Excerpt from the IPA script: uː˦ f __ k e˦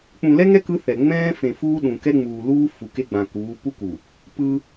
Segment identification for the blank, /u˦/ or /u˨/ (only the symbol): u˨